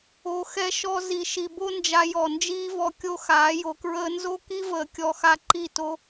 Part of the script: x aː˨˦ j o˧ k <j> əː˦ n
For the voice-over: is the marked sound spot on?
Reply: no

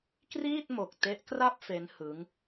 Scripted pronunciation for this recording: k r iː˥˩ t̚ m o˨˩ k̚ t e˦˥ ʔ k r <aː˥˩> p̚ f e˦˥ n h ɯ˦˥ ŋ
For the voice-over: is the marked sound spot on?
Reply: no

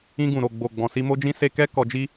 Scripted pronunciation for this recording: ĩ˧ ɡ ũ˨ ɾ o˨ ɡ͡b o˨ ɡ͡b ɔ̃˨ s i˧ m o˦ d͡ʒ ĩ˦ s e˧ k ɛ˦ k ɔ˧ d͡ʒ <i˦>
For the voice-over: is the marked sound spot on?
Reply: yes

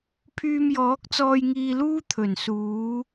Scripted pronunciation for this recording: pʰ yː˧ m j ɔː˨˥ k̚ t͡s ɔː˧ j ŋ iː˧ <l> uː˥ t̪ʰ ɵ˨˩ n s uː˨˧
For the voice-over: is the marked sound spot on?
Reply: yes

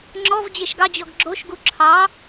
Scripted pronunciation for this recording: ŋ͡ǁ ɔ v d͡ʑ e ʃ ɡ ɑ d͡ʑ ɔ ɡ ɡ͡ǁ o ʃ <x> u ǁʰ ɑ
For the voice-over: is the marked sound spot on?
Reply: no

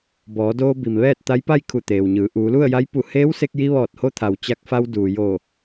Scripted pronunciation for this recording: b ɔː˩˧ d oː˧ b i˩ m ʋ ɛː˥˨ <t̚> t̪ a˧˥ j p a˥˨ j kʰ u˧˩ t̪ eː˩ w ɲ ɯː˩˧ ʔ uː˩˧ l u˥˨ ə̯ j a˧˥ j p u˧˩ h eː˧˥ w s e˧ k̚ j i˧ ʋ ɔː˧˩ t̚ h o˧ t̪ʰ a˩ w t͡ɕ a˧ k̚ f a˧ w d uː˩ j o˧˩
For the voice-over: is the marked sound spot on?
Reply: yes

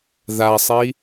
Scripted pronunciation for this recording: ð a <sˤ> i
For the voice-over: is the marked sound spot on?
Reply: yes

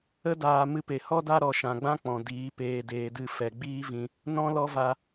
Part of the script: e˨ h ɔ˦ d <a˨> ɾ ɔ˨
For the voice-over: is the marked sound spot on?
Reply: no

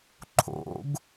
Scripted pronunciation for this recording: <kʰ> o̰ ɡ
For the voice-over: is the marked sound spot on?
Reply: no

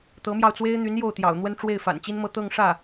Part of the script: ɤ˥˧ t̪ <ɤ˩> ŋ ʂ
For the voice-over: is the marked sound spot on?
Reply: no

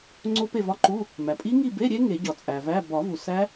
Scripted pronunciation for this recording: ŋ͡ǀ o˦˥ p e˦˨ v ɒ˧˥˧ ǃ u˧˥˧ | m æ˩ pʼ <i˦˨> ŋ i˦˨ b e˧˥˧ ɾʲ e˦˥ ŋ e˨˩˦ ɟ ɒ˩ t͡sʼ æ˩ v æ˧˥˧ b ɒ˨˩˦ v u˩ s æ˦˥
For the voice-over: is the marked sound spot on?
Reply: no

